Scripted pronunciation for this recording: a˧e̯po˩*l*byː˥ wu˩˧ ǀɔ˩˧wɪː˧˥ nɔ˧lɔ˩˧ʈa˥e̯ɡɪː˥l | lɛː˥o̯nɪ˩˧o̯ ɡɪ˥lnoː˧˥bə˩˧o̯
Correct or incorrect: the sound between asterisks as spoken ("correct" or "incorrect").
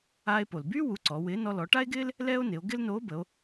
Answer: correct